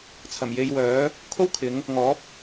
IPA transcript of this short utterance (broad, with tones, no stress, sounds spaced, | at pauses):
t͡sʰ ɐ˨˩ m j e˧ j w œː˨˥ | kʰ o˥ w kʰ ɪ˨˧ ŋ | ŋ ɔː˨˥ p̚